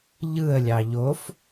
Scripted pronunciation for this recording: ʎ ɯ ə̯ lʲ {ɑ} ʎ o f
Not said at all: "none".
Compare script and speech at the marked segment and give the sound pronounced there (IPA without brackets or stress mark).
ɑ